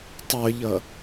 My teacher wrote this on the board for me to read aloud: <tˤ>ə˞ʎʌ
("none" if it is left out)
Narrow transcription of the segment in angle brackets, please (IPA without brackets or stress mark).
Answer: tˤ